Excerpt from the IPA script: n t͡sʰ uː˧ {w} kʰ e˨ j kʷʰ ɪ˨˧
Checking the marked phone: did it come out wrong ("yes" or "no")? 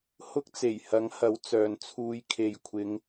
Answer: yes